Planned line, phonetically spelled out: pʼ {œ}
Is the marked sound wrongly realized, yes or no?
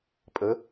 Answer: yes